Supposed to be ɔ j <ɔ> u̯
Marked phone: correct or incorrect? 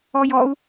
correct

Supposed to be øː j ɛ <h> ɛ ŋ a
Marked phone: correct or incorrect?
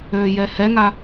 correct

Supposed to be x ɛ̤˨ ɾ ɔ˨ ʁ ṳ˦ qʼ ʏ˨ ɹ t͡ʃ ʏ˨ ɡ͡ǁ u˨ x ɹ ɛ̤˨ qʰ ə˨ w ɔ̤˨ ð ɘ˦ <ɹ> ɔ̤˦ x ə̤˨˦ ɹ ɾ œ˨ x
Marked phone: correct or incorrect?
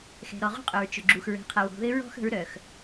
correct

